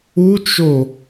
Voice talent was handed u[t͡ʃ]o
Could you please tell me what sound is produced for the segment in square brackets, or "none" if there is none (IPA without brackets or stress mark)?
t͡ʃ